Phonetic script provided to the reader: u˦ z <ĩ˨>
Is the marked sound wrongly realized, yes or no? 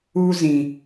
no